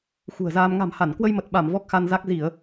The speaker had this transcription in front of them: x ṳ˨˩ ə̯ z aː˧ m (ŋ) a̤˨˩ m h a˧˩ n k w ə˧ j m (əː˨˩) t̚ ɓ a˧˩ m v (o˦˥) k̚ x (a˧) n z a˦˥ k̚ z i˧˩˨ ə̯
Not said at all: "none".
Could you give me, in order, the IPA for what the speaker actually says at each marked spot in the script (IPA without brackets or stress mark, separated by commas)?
ŋ, ə˨˩, ɔ˦˥, a˧